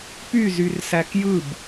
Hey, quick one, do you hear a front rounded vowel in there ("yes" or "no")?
yes